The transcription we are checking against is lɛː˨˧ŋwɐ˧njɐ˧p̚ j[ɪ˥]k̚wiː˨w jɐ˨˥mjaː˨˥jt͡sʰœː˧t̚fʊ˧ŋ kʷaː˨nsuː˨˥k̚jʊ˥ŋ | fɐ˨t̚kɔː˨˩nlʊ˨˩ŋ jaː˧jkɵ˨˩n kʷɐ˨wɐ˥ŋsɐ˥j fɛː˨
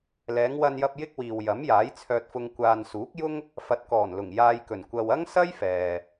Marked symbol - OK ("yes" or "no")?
yes